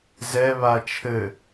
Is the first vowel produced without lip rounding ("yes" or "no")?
yes